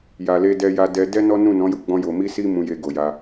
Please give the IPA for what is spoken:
j a˨ l e˧ d ɛ˧ j a˧ d ɛ˧ d ɛ˦ n ɔ˦ n ũ˦˨ n ɔ̃˨˦ j u˦˨ ɡ͡b ɔ̃˧ j o˨ m i˧ s i˧ m ũ˧ j e˧ ɡ o˨ j a˧

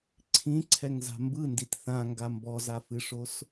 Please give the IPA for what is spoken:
ǀʰ ĩ ǀʰ ɛ ŋ z a̤ m b ɯ n d i t θ ã ŋ ɡ a m b ɔ z a f ɨ ʂ o s

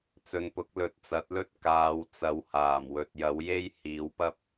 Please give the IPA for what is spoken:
t͡s ɵ˨ n p ʊ˨˥ k̚ l ɵ˨˥ t̚ t͡s ɐ˨˥ t̚ l ɵ˥ t̚ k aː˨˧ w t͡s ɐ˨˧ w h aː˨˩ m w ɵ˨ t̚ j ɐ˨˥ w j e˥ j h iː˨˥ w p ɐ˥ p̚

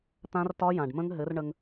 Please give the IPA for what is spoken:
t̪ ã˦˥ r t ɒ˦˥ j ã˨˩ ɖ m ə̃˦˥ ŋ ɦ ɘ˨˥ r ɳ ə˧ ŋ

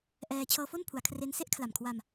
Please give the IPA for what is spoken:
ʔ ɛː˧ t͡ɕʰ ɤː˧ f o˥˩ n pʰ u˩˦ a̯ kʰ r e˦˥ n s e˦˥ ʔ kʰ l a˨˩ m kʰ w a˧ m

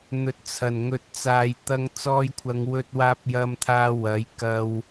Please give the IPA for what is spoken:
n̪ ɵ˨ t̚ t͡sʰ ɐ˨˩ n ŋ ɵ˨ t̚ t͡s aː˨ j t̪ ɐ˧ ŋ t͡s ɔː˧ j kʷʰ ɐ˨˧ ŋ w ɵ˧ t̚ w aː˧ p̚ j ɐ˧ m t̪ʰ aː˧ w ɐ˨˥ j k ɐ˧ w

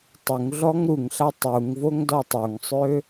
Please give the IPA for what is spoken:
tˤ u ŋ ɮ ɔ ŋ ɾ u ŋ ɬ a tˤ u ŋ v o ŋ d ɔ tˤ o ŋ sˤ ø

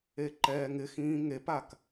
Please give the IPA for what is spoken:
e ǃ ɛː ŋ ɪ x ĩː ŋ e p a k

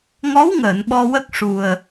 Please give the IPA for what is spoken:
ŋ ɔ˧˥ w ŋ əː˨˩˨ n ɓ ɔ˧ w ə˦˥ k̚ ʂ u˨˩ ə̯

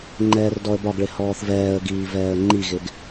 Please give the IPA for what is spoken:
ŋ͡ǃ ɛː r d ɔ ə̯ b ɒ ɡ ɭ ɪ h ɔː θ v ɛː ə̯ ɡ iː v ɛː ə̯ ŋ͡ǃ i ɣ ɪ ɡ

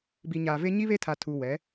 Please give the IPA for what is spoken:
b i˨ ɲ aː˨ v e˦ ɲ i˦ β e˦ tʰ a˨ tʰ u˨ w ɛ˨˦

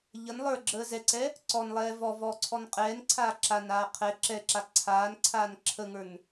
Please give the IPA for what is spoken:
ʎ ə n lˠ ə˞ ɡ͡ǁ əː z ɛ ǀ ɛ | ǀ ɔ n lˠ ɛː v ɔ v ɔː ǀʰ ɔ n qʼ ɛː n ǀʰ aː ǁ a n aː qʰ ɛ ǁ ɛ ǁ a ǀʰ aː n ǀʰ aː n ǁʰ ə ŋ ə˞ n

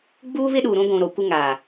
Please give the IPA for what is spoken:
ɡ͡b uː˦ β ɪ˦ ɗ u˨ ɾ ũ˦ ɡʷ ũ˨ ɾ o˨ kʷ ɪ˦ ŋ aː˨

